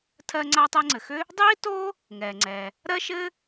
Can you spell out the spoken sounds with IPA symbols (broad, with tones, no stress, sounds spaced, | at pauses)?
tʰ ɜ˥ ŋ͡ǀ a˥ tˤ ɛ˥ ŋ͡ǀ ɘ˩ x ʏ˥ | dˤ iː˥ t o˥ | ŋ ɛː˩ ŋ͡ǀ ɛ˩ | ɾ ɜ˥ ʃ ɘ˥